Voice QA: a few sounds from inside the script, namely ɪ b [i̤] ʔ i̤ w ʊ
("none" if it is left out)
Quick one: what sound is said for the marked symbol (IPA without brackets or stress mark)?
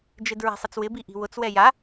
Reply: i